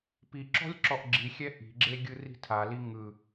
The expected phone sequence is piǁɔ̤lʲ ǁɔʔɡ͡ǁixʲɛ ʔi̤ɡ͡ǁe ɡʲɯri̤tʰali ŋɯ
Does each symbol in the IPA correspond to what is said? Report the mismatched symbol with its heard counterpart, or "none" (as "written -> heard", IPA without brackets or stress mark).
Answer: none